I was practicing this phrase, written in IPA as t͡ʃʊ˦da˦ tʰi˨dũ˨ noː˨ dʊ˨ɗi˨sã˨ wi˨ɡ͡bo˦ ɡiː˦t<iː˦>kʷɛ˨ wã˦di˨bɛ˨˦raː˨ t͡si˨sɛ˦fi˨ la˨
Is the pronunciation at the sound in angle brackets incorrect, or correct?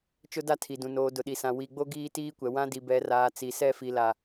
correct